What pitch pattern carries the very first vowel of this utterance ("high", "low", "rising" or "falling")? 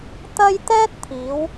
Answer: high